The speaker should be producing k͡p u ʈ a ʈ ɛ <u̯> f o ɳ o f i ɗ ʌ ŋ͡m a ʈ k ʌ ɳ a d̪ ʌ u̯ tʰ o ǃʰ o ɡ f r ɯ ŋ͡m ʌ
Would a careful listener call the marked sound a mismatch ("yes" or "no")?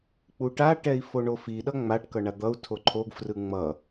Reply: yes